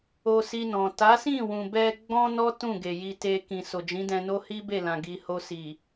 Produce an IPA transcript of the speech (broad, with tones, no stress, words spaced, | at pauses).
o˧si˧nɔ̃˨ ta˨˦sĩ˦˨wũ˨bɛ˧ ɡ͡bɔ̃˦nɔ˦ tũ˦˨ɡe˨ ji˧te˧ kĩ˨so˨d͡ʒĩ˨˦ dɛ̃˧no˦ hi˦be˦˨lã˨ ɡi˨ ho˧ si˨